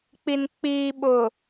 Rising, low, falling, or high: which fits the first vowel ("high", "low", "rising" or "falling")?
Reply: low